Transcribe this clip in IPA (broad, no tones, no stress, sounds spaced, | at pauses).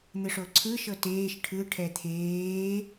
n̪ ɯ ʂ o ǀʰ ɯ ʃ ɤ t eː ʃ ʈʰ ɯ ʈʰ ɛ t̪ʰ eː